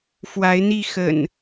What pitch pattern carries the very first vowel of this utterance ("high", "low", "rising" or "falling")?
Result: rising